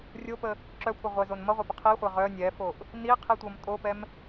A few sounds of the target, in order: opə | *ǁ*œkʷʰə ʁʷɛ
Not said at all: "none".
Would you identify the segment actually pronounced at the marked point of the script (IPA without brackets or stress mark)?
ǁ